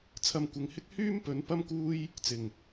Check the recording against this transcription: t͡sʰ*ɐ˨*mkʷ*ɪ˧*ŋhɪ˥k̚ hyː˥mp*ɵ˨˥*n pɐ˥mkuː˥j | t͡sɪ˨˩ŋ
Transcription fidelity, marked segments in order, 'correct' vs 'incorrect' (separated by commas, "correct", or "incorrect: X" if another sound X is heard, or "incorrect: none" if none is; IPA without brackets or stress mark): incorrect: ɐ˧, incorrect: ɪ˨˧, correct